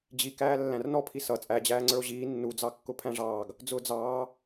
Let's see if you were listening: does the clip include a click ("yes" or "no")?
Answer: yes